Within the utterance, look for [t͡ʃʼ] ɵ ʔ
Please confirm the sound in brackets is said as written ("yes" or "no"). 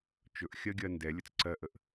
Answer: no